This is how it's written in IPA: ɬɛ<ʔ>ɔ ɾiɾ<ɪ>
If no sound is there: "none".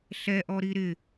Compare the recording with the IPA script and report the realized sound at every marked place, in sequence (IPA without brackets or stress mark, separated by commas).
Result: ʔ, ɪ